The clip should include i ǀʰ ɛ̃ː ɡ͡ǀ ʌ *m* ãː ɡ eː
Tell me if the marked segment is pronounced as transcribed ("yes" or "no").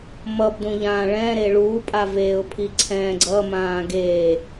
yes